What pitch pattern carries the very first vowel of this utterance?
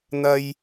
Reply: high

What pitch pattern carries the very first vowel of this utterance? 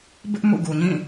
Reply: high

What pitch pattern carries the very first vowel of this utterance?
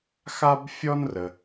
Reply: high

